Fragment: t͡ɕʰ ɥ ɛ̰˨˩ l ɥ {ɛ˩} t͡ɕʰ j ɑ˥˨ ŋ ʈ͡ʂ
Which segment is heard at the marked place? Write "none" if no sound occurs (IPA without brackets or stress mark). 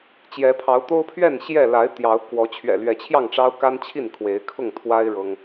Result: ɛ˨˦